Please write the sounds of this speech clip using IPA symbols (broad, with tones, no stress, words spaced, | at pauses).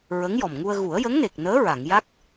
ɹə˧˥ŋjɔ˨˩mŋu˧ə̯ ɣu˨˩˦ə̯jə˧˥ŋne˨˩k̚nəː˧˥ ɹa˨˩˨ŋja˦˥k̚